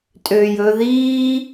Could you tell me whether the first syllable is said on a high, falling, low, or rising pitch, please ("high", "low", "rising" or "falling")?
low